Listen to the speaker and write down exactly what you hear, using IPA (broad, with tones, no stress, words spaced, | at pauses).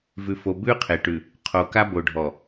vʉ˨fo˨ bʉ˦qʰe˨ʈʉ˨ | qʰo˨ka˦ bo˨ɖʱɔ˨